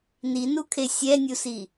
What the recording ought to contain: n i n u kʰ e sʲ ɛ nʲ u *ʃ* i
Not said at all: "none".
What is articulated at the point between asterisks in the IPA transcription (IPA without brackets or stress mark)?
s